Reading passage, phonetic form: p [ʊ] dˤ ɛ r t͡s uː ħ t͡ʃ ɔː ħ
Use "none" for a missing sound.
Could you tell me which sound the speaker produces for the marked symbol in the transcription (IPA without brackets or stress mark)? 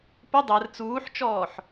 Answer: ʊ